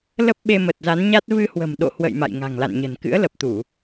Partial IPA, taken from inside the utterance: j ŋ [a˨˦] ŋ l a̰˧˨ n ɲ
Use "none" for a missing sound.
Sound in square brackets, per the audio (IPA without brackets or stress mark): a̤˨˩